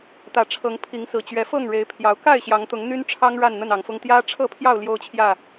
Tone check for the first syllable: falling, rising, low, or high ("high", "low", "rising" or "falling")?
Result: low